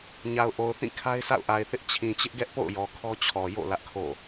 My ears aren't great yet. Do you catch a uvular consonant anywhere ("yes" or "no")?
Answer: no